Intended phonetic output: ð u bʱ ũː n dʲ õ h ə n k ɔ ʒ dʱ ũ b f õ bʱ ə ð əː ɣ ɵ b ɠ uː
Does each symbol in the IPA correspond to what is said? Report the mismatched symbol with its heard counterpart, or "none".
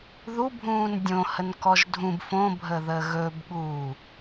none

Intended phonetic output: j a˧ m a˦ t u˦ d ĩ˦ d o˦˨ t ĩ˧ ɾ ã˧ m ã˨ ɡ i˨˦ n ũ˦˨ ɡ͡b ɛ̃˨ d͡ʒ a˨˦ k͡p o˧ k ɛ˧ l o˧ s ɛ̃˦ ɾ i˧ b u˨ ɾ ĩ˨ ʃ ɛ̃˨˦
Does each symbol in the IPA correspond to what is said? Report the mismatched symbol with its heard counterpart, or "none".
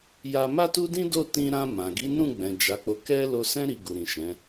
b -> ɡ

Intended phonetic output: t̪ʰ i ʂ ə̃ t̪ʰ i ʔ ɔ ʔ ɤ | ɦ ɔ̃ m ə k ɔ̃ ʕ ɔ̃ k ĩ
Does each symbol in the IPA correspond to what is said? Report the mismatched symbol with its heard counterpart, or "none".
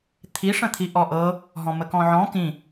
none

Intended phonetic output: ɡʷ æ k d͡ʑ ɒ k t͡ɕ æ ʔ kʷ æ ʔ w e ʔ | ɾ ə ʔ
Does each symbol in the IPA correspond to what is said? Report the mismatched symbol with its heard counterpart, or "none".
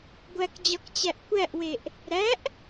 ə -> æ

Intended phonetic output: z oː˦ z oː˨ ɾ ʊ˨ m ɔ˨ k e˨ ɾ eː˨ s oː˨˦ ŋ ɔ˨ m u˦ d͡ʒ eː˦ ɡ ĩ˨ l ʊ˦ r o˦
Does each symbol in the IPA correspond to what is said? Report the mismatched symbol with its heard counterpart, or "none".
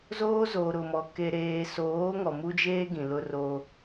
none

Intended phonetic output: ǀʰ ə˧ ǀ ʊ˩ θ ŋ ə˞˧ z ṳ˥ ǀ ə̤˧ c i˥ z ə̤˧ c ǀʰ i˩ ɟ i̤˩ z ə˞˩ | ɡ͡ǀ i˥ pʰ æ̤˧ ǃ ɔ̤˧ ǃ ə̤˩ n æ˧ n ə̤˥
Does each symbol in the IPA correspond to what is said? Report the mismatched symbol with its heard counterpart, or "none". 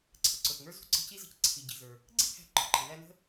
none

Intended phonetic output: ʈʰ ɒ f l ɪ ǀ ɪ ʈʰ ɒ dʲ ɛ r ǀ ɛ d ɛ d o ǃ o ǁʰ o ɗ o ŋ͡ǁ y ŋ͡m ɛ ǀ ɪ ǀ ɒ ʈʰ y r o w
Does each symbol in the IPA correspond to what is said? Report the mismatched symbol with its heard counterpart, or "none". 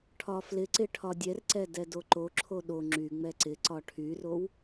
none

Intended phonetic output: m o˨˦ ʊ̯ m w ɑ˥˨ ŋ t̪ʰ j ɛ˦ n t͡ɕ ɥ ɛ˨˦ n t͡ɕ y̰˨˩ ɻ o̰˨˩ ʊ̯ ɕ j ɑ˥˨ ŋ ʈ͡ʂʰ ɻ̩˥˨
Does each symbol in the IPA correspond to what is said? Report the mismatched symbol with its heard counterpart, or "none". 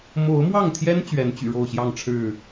o̰˨˩ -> o˥˨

